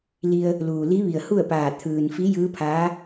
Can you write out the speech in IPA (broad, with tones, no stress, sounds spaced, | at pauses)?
l i˧ ə̯ | l uː˩ l i˧˥ ʋ i˩ ə̯ h u˥˨ ə̯ p aː˧˩ t̪ʰ ɯː˩ n f i˧˥ j ɯː˧˥ pʰ aː˧˥